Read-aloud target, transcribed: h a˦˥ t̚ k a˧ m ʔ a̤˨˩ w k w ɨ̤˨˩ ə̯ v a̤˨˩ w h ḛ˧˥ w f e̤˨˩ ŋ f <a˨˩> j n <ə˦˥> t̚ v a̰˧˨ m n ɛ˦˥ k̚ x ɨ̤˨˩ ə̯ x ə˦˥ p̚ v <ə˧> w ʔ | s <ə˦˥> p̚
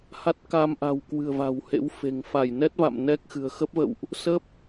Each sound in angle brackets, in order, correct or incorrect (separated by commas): incorrect, incorrect, incorrect, correct